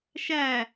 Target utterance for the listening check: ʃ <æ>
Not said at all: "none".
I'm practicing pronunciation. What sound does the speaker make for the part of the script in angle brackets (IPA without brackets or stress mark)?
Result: æ